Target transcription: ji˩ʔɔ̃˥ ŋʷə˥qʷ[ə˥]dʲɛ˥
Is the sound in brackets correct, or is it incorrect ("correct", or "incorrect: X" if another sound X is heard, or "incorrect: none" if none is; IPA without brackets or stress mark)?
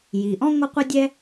correct